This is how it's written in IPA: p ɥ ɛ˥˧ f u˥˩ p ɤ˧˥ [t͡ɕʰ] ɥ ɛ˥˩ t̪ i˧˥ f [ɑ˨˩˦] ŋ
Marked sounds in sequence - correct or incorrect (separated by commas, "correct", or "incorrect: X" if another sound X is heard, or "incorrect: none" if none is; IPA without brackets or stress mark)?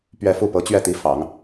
incorrect: t͡ɕ, correct